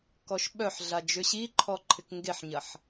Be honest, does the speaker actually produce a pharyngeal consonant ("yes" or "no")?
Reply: yes